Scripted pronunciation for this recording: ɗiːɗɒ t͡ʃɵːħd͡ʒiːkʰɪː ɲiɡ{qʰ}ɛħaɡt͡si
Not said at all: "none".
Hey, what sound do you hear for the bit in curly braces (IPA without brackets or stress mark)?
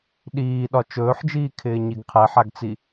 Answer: qʰ